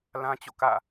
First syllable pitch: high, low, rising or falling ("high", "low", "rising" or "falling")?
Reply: high